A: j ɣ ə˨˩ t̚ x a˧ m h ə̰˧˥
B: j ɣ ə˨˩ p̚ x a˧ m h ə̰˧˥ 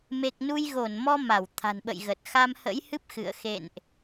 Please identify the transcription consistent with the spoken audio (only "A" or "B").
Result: A